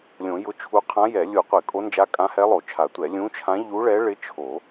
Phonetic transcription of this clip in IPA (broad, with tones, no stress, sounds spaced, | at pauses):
lʲ õ˨˩˦ j ʊ˧˥ t͡ʃʰ u˧˥ qʰ ã˧˥ j ɛ˨˩˦ lʲ u˨˩˦ qʷ ɪ˨˩˦ kʼ o˧˥ n d͡ʒ a˧˥ kʼ ã˧˥ h ɛ˧˥ lˠ o˨˩˦ t͡ʃʰ a˨˩˦ tʷ ɛ˨˩˦ lʲ ũ˧˥ t͡ʃʰ ã˧˥ ʎ u˧˥ ɭ ɛ˧˥ ɭ ɪ˧˥ t͡ʃʰ o˨˩˦